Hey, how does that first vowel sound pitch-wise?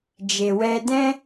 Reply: low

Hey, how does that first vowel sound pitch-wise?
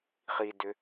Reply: low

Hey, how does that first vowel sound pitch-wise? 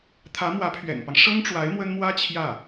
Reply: rising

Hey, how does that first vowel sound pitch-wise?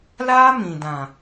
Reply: high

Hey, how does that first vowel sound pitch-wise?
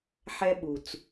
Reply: high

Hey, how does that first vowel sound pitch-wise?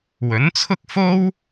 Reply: rising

